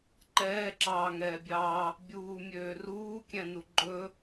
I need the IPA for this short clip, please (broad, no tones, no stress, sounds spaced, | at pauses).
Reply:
ǃ ɛː ǁ ɑː ŋ ɛː bʲ ɑː | bʲ uː mʲ øː r uː kʲ ɛ̃ n u ɡ͡ǃ ɵ